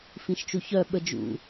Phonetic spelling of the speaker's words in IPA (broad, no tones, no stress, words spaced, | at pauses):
fĩʃt͡ʃuçœ ɓəd͡ʒṵ